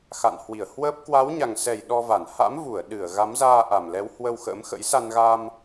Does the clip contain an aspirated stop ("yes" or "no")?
no